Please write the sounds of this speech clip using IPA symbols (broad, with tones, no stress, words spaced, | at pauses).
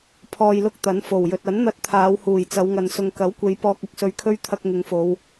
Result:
pʰɔː˧jlʊ˥k̚t̪ɐ˨˥n fo˨˩wjɵ˨t̚ ɐ˨˥nn̪ɐ˧t̚ t̪ʰaː˨˧whuː˨˩j t͡sɐ˨˧wŋɐ˨n sʊ˨ŋkɐ˨˥wkʷe˨˧j pɔː˧k̚ʊ˨˥k̚sɵ˧ɥkʰɵ˥ɥ t̪ʰɐ˧k̚ ŋɪ˨˧ŋfo˨˧w